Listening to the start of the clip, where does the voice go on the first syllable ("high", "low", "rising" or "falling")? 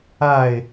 falling